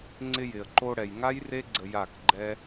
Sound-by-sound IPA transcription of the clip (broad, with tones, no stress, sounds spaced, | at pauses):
ŋ͡ǀ ɪ˧ j ɪ˨ ə̯ ǃ o˧ ɽ ɛ˨ j ŋ a˦ j r e˦ ɡ͡ǀ ə˧ j a˦˨ k ɡ͡ǃ ɛ˦